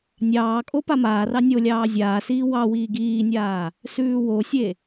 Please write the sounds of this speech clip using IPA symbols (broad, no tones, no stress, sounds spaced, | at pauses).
nʲ ɑː kʼ o p a m aː r ɑ nʲ o lʲ ɑː zʲ aː s iː w ɑ w iː ɡ iː nʲ aː | s ʉː w o sʲ e